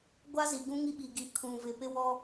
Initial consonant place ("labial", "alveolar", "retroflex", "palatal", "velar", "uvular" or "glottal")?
velar